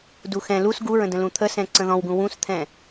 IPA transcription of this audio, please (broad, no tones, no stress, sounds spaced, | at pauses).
d u x ɛ̃ l u s ɡ u ɹ ə̃ d ə̃ l ũ t̪ʰ ə s ɛ̃ ǀ ə̃ ð ɔ̃ w ɡ ũ w ũ s t̪ʰ ɛ̃